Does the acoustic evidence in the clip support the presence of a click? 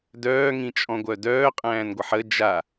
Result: no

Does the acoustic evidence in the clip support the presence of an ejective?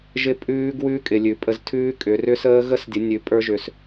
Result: yes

